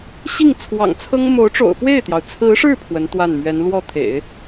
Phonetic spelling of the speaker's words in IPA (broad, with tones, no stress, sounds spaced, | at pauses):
ɕ i˥˩ ŋ t͡sʰ w ɑ̰˨˩ ŋ t͡sʰ ɤ˥ ŋ m o˧˥ ʊ̯ ʈ͡ʂ o̰˨˩ ʊ̯ f w e˥˩ ɪ̯ t̪ j ɑ˩ ʊ̯ t͡sʰ ɹ̩˧˥ ʂ ɻ̩˥˩ pʰ w ə˧˥ n t̪ w a˥˩ n m ɥ ɛ˧˥ n l w ɔ˥˩ t̪ʰ ḛ˨˩˦ ɪ̯